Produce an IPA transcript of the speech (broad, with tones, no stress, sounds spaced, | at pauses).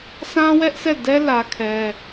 sʰ ã˦ w ɛ˦ ʔ sʰ ɛ˦˨ d ɛ˦ l ä˦ kʰ ɛ˦